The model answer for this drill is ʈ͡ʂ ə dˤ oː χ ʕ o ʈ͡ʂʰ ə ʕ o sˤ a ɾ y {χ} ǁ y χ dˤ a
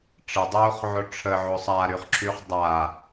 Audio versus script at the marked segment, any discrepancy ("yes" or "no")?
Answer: no